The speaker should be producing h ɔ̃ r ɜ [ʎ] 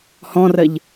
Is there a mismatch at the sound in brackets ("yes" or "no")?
no